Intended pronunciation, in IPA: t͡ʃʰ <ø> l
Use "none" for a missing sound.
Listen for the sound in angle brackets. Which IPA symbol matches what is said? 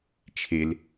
e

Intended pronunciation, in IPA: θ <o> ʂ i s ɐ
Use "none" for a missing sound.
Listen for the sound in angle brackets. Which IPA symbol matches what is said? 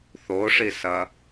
o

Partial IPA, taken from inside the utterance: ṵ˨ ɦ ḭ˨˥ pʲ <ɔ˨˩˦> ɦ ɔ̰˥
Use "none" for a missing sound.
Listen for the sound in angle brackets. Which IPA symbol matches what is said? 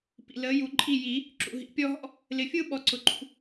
ɔ˥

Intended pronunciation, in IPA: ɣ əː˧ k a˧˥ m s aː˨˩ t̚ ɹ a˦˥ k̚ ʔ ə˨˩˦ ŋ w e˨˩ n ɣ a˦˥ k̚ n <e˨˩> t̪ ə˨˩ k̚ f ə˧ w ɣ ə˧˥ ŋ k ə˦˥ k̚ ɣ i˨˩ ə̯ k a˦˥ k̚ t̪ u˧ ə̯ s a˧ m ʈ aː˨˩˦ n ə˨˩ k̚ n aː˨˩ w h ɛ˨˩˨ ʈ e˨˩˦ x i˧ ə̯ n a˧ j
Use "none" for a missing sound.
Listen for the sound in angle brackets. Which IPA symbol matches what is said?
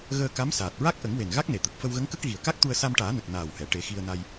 e˨˩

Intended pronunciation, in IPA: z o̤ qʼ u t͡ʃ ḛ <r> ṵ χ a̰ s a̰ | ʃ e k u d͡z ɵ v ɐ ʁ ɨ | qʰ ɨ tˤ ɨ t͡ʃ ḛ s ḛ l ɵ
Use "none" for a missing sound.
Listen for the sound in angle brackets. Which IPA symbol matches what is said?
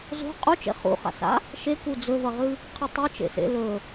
χ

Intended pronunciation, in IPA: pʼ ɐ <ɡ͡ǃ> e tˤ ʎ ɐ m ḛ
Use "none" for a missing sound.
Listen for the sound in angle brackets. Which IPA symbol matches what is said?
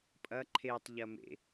ǃʰ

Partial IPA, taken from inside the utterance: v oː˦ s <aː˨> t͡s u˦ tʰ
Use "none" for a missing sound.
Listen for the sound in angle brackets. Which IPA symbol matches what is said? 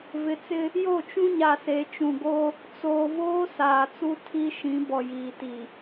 aː˨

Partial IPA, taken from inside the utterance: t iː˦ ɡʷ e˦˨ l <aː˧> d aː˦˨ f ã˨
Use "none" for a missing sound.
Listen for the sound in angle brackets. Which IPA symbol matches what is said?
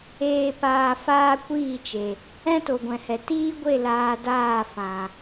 aː˧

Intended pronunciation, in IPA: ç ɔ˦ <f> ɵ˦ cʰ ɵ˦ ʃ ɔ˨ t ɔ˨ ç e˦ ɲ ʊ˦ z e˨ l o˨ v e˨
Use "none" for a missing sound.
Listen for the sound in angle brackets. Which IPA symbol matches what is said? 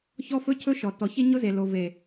f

